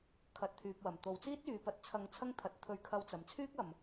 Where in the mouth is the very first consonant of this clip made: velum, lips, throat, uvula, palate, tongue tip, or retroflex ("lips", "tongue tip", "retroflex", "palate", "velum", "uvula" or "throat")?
velum